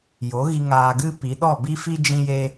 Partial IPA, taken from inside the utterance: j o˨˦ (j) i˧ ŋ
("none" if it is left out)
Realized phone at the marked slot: ɣ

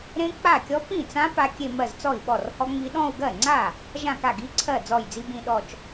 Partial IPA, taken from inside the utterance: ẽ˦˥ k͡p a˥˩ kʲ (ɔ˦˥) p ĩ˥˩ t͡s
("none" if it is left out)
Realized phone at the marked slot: ɔ˦˥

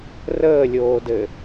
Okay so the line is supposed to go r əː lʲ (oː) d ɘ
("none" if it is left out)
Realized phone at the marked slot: oː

